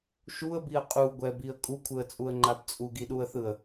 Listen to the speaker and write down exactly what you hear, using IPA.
ʃ u ə̯ b i ə̯ qʼ u ɡʷ ɛ b i ə̯ kʼ u kʷʰ ɯ ə̯ t͡sʼ u ə̯ ŋ͡ǃ a b t͡sʼ u ɡ i ɗ u ə̯ θ ɯ ə̯

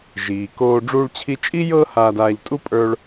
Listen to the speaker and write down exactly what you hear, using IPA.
ʒ iː˩ k oː˧ ɖ͡ʐ uː˧ ɭ t͡ɕʰ i˧ t͡ʃʼ i˥ j ɤː˥ h aː˧ d aː˧ ʎ tʼ u˥ pʼ ə˞˧ ɭ

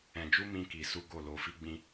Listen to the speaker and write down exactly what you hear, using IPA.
ɛ̃˧ d͡ʒ u˦ m ĩ˦ k i˧ s u˦ ɡ o˦˨ l o˧ f i˦ ɡ͡b ĩ˦

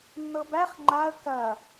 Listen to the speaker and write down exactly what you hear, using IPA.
nː ɤ b æ χ ŋ͡ǃ a ə̯ k ɐ

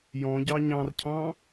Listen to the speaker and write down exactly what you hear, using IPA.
j ɔ̃ ɟ ɑ ɲ ɑ̃ r cʰ ɑ̃

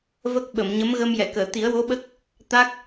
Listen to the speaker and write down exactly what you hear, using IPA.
v ə˦˥ k̚ ɓ ə˨˩˨ m ɲ ə˧˥ m ɣ ə˧ m j ɛ˨˩˨ k əː˨˩˨ t̪ i˨˩˦ ə̯ w o˧˥ ɓ ə˦˥ k̚ | t̪ a˦˥ k̚

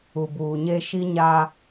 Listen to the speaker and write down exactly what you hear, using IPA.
u˨ b uː˨ ɲ e˦ ʃ i˦ ɲ aː˦

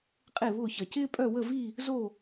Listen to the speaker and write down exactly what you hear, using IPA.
qʼ e˥˧ β ʊː˥˧ ç ɐ˧ c ɪː˥ pʼ œ˥˧ w ə˥˧ v i˥˧ | z o˥˧

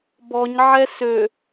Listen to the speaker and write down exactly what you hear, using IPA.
b ɔ ɲ ʕ ɛ s ø

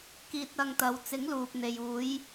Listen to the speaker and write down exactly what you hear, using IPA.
k iː˧ t̚ ɐ˧ ŋ t̪ ɐ˨˧ w t͡s ɪ˨˥ ŋ l uː˨ p̚ n̪ e˨ j uː˨˥ j

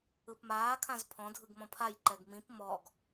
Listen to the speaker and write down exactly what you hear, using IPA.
ɯ p m aː kʰ ã z pʰ ɔ̃ dʱ ɯ ɡ m ɔ̃ pʰ a j ǃ ɛ ɡ m ĩ p m ɔ ɡ

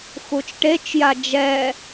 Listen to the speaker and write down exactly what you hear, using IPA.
x u t͡ʃ ʈ e t͡ʃ j a d͡ʒ ɛ

